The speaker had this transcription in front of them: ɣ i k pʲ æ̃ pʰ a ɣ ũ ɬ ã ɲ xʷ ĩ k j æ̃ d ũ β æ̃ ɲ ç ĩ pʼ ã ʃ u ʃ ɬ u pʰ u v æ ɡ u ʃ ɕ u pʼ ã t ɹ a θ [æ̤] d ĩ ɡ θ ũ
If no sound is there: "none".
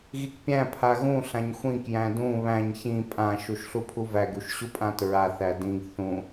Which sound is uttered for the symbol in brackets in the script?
æ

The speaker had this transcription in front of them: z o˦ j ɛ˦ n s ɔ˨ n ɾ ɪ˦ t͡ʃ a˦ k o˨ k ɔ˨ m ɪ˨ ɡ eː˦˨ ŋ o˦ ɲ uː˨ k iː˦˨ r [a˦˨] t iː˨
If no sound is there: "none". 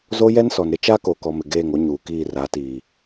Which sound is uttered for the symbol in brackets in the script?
a˨˦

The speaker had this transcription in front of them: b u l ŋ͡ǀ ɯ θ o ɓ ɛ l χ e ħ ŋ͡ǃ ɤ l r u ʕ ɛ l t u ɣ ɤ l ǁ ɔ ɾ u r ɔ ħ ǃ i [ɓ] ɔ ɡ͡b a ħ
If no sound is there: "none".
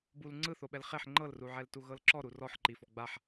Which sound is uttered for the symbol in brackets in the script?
f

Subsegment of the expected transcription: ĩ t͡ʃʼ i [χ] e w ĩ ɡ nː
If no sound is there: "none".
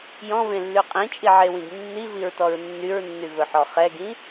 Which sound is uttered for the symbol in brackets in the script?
ʕ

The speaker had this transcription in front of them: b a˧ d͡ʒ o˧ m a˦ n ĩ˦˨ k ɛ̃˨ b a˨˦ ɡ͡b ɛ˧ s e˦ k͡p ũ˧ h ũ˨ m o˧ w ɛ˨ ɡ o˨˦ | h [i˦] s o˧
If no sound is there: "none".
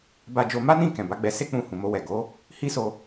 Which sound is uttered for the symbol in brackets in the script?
i˦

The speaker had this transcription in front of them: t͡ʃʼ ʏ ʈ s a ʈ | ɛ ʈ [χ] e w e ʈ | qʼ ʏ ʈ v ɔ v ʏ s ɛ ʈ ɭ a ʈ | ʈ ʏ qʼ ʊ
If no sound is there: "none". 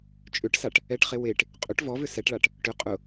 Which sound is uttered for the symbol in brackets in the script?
χ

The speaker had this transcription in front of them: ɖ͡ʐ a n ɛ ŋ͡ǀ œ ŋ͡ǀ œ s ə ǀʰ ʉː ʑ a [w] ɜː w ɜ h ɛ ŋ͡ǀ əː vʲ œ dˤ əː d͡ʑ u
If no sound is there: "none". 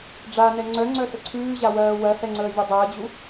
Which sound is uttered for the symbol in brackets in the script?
w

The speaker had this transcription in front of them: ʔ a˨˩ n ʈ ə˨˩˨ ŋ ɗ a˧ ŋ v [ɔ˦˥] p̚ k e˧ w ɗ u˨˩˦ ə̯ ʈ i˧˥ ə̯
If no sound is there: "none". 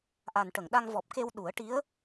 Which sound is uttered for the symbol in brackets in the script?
ɔ˨˩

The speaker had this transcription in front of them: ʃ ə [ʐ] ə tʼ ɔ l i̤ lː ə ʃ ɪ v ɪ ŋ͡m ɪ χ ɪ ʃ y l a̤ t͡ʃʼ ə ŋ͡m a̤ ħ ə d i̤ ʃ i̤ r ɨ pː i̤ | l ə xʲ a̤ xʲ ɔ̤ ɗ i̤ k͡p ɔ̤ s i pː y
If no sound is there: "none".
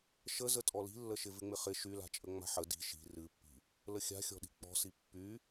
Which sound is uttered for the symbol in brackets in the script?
z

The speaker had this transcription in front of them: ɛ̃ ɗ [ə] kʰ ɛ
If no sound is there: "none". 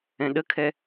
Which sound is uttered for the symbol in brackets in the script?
ə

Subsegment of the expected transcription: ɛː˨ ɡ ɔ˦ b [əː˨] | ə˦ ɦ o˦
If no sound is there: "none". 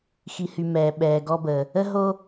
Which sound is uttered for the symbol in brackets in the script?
əː˨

